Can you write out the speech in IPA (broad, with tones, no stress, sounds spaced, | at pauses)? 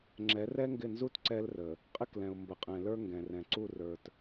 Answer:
ŋ͡ǁ ɛ˨˦ r ɛ˦ ŋ ɡ ɪ˦˨ n z u˦ t ǀ ɛ˦ l r ə˨ | qʼ ɪ˦ k l ɛ̃˨ ʊ̯ m b ə˨ qʼ ɛ̃˨ l ə˞˦ ŋ ɡ ɛ̃˨ r ɛ̃˨ ǀ u˦˨ r ə˞˨ t